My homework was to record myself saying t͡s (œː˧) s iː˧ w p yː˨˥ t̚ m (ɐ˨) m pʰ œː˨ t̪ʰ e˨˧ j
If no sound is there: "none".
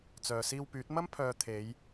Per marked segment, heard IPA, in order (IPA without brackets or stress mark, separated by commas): œː˨, ɐ˥